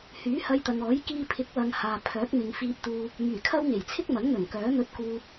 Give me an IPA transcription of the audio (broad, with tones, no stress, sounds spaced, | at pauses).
h yː˨˥ h ɐ˧ j t̪ ɐ˨ ŋ ɔː˨˥ j k iː˧ pʰ ɪ˨˥ k̚ w ɐ˨ ŋ h aː˨ pʰ œː˨˥ k̚ m ɪ˨ ŋ f iː˧ p̚ t̪ uː˧ | m yː˨˩ kʰ ɐ˥ w ŋ e˨˩ j t͡sʰ ɪ˥ k̚ m ɐ˨˥ ŋ n̪ ɵ˨˩ n k œː˨˥ n̪ ɵ˧ t̚ k uː˧ p̚